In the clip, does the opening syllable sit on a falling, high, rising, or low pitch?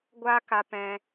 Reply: high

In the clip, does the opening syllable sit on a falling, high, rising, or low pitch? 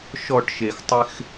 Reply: falling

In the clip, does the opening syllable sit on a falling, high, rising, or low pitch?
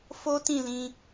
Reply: high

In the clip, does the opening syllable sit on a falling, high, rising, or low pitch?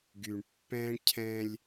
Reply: low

